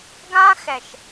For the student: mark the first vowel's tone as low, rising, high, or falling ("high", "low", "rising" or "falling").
high